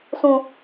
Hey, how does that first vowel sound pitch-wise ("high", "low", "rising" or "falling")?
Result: high